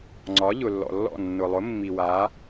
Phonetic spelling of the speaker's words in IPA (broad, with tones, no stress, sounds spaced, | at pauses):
ŋ͡ǀ ɒ˩˥ ʎ ʊ˩ lː ɔ̰˩ lː ɔ̰˥˩ nː ʊ˩ lˠ ʊ˩˥ mː i˩ w a˩˥